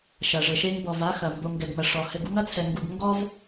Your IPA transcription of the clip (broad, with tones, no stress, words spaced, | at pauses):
ʃɐ˨ʐɘ˨ʃe˦ŋ bɔ˨va˦xɐ˨ mbo˨ ŋɡɛ˨ɡmɐ˨ ʂɔ˨ hɘ˦ɡ u˦ŋɐ˦t͡sʰɛ˨ ŋɡu˨ɡ ŋɡɔ˦v